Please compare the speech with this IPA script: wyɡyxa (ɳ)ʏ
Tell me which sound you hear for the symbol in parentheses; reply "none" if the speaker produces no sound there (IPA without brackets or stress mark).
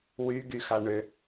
ɳ